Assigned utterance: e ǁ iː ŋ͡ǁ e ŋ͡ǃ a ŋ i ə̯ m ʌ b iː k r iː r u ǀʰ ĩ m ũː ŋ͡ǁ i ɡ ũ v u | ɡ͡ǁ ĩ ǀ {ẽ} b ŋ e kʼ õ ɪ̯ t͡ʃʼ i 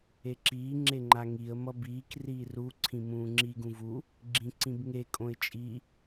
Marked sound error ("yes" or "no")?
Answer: yes